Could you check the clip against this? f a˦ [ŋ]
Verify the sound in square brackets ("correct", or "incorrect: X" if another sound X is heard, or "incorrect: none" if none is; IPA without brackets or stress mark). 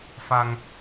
correct